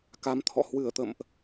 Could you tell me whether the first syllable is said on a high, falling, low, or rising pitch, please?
rising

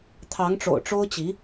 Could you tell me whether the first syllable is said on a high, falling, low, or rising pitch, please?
rising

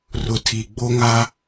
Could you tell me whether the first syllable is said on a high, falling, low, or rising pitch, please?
low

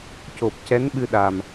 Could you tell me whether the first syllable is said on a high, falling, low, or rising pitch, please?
low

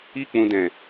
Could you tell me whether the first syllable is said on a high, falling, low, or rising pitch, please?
high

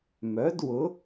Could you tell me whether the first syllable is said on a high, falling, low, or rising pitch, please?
rising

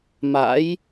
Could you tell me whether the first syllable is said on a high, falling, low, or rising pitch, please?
rising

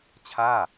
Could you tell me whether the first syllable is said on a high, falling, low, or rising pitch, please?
falling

